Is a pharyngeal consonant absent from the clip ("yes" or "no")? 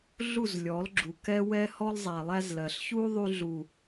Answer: yes